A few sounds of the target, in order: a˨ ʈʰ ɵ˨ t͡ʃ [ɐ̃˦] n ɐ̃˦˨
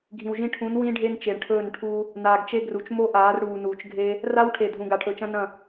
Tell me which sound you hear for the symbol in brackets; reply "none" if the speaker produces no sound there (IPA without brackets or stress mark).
ɐ̃˦